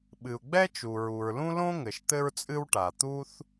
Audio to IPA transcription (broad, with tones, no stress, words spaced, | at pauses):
ɓɨ˩u̯ɡ͡bɛ˥t͡ʃu˩ ɹu˩ɹlũ˥ lõ˥ŋɘ˩ʃ t̪ɘ˥ɹt͡sʼɨ˥wʈa˩ t̪u˥θ